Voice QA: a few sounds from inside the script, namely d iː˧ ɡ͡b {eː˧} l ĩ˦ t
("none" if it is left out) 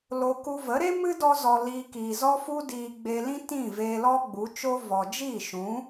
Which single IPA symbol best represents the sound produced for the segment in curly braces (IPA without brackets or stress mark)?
eː˧